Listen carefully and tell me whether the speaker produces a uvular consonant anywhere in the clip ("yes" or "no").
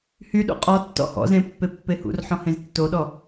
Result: yes